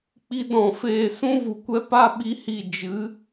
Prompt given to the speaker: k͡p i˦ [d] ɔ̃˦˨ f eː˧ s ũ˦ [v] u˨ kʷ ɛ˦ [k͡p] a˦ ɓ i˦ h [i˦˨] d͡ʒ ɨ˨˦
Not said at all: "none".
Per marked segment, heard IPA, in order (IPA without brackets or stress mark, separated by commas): d, v, p, i˦˨